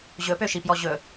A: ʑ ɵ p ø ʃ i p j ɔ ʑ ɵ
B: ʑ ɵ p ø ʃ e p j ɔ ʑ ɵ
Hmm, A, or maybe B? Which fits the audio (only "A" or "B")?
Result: A